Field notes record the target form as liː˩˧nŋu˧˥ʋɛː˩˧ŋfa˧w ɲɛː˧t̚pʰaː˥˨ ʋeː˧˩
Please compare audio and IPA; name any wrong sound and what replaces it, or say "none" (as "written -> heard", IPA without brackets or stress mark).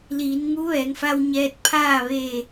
none